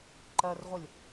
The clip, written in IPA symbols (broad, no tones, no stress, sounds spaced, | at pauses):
ǃ ɜ r ʁʷ ɜ lʲ